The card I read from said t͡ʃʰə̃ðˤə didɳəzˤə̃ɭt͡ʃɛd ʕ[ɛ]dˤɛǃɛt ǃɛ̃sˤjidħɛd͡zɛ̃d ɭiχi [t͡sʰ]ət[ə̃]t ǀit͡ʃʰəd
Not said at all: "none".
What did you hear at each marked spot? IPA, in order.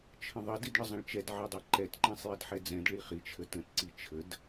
ɛ, t͡ʃʰ, ə̃

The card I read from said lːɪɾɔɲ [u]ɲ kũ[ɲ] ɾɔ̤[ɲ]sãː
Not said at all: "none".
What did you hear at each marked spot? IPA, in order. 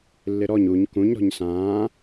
u, ɲ, ɲ

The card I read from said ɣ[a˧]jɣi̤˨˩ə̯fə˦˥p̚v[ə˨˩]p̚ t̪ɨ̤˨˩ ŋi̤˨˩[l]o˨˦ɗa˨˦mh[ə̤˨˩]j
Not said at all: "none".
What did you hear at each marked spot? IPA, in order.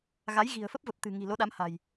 a˨˦, ə˨˩, l, a̤˨˩

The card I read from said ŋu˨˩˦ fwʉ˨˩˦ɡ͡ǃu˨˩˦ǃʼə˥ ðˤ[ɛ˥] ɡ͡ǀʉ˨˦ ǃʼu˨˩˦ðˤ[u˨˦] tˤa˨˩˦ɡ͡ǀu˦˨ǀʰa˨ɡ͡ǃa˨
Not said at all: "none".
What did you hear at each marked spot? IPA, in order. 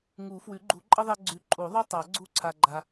ɛ˥, u˥

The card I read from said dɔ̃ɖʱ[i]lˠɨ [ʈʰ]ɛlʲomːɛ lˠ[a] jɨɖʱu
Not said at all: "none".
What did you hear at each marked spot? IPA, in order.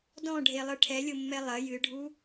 e, ʈʰ, ɐ

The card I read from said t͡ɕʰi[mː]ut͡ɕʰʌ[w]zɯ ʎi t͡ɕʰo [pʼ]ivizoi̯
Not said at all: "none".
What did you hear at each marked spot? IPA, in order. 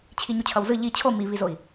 ɲ, w, m

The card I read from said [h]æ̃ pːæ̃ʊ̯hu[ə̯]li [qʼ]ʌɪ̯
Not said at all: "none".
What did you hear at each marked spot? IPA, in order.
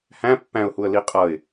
h, ə̯, qʼ

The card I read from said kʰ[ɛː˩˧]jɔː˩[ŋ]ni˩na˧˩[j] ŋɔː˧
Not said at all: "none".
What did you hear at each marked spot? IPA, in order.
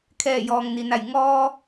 ɛː˧˩, ŋ, j

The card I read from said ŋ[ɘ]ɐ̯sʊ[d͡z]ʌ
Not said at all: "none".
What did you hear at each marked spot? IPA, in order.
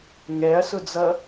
ɛ, d͡z

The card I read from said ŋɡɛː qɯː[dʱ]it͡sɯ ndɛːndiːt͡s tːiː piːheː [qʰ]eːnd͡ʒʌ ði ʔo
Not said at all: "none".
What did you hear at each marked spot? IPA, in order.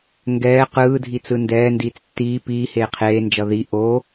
dʱ, qʰ

